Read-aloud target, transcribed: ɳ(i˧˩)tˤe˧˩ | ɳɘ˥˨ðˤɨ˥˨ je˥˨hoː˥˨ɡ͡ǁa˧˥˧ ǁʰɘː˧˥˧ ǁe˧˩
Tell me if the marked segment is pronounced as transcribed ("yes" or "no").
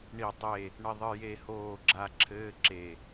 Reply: yes